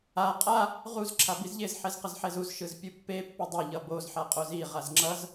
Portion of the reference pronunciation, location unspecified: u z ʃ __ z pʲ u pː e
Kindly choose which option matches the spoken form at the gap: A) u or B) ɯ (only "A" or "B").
B